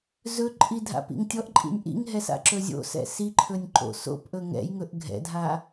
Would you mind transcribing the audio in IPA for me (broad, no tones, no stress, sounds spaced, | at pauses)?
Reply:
z ɵ ǃʼ i dʱ a̰ p ḭ ŋ tʲ ɔ ʔ ǃʼ ḭ nʲ ʔ ḭ ŋ ɦ ɛ s a̰ ǁ ɵ zʲ o̰ s ɛ̰ s i ǃʰ ɵ nʲ ǃ o̰ s o̰ p ʔ ɵ ŋ ɛ̰ j ŋ ɵ ʔ ɡʱ ɛ̰ dʱ a